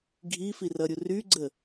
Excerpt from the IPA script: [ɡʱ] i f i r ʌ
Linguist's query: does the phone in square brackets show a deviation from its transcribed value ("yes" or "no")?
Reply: no